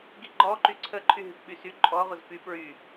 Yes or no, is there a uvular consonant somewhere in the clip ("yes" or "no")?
yes